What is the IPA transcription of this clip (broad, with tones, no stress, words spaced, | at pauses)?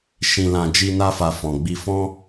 ʃĩ˧lã˧ d͡ʒi˦na˦fa˧ fɔ̃˨ɡ͡bi˧fɔ̃˦